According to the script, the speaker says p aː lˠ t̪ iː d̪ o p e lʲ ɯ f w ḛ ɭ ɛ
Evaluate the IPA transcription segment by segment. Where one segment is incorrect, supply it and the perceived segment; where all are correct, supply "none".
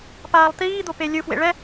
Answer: none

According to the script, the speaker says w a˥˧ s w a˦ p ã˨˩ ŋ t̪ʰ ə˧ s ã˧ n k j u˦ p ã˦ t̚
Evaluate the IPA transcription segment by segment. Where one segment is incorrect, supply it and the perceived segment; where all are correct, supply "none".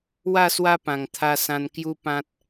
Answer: ə˧ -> a˧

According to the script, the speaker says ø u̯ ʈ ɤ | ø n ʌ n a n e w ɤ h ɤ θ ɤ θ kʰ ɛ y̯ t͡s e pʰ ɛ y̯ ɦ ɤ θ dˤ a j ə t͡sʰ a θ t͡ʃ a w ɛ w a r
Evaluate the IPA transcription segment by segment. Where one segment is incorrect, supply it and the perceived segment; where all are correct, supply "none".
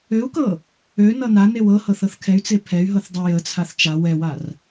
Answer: ʈ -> k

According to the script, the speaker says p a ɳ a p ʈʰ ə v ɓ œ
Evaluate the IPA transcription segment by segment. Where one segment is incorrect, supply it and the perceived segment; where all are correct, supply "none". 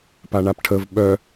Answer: none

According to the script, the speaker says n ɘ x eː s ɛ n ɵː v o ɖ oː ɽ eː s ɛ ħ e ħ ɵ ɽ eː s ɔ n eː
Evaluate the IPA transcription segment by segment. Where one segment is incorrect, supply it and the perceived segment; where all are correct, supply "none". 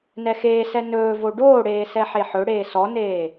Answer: ɘ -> ɛ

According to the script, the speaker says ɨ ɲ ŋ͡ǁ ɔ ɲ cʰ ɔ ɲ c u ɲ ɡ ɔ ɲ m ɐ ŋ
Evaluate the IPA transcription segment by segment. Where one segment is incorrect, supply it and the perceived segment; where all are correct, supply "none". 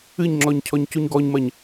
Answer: ŋ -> ɲ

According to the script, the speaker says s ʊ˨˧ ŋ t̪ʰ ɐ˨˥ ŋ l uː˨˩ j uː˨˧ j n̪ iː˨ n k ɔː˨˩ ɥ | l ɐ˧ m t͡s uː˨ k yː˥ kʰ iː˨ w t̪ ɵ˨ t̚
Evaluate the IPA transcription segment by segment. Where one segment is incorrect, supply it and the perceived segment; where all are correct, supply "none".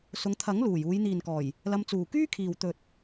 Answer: ɥ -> j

